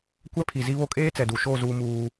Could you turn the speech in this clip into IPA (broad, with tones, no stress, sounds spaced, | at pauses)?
kʷ ɛ˦ pʰ i˨ z i˦ β o˦ kʼ eː˦ t͡s ɛ˨ d u˨ ʃ oː˦˨ z uː˦ m uː˦